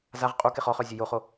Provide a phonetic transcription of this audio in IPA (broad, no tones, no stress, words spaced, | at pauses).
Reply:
zaʁ qʼu keχɔχœ zʲejoχo